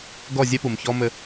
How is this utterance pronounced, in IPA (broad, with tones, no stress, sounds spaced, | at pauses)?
ɡ ɔ˦˨ zʲ ɛ˦ p u˨ m ç ɔ˦ m ɘ˦